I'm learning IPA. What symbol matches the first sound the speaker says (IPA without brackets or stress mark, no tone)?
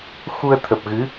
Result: x